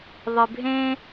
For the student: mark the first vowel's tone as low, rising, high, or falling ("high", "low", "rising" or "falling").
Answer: low